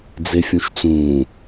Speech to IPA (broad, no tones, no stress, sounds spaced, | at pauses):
d͡z e fʲ ũ ʃ t͡s ũː